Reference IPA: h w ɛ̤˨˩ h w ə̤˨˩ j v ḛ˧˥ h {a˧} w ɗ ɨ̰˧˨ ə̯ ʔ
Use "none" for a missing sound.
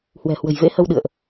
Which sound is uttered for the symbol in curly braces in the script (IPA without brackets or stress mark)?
ə˧